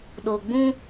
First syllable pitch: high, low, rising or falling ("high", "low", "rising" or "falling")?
low